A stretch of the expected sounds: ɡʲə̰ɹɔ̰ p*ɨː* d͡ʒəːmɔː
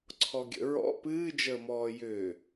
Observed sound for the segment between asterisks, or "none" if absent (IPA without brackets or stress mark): ɨː